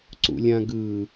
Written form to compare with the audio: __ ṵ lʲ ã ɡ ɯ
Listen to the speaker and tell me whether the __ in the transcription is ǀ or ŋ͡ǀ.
ǀ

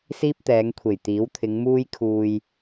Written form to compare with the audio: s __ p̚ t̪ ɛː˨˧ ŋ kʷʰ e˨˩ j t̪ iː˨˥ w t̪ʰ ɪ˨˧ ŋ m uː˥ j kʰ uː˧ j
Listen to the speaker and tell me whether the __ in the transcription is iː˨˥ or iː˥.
iː˥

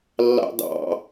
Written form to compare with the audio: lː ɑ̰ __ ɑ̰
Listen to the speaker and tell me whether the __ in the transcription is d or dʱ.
d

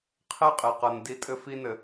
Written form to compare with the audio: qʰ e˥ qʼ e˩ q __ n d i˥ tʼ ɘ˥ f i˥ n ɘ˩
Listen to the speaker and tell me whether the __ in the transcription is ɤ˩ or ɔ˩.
ɤ˩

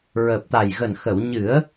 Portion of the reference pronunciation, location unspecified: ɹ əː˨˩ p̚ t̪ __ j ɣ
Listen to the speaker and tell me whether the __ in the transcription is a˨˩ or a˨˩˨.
a˨˩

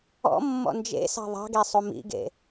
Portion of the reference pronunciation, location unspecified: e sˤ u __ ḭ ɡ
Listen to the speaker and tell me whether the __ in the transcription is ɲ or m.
m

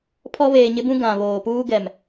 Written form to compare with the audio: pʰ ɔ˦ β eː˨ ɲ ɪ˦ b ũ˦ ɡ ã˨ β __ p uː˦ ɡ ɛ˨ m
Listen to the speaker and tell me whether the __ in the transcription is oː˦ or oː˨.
oː˨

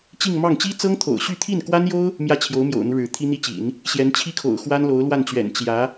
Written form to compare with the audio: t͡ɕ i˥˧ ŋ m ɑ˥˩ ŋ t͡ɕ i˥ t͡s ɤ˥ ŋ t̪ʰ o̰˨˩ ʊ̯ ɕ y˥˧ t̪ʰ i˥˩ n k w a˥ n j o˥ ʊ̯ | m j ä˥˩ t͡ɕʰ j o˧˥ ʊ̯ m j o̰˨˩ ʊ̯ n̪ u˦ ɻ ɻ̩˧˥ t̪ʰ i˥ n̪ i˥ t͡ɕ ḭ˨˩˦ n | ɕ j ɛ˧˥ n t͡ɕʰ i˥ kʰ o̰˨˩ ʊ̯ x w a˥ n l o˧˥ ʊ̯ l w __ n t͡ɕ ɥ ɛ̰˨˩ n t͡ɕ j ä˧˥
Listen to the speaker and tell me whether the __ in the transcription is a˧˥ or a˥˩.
a˥˩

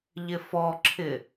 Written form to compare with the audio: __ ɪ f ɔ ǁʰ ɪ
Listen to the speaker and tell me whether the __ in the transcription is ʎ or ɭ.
ʎ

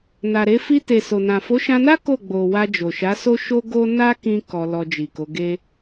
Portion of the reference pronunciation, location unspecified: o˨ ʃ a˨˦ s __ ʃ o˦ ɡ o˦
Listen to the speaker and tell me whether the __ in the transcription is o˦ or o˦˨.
o˦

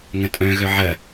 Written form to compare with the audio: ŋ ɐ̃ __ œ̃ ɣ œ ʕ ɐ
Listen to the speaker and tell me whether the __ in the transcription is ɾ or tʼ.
tʼ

